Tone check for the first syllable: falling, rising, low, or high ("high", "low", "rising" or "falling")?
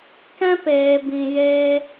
high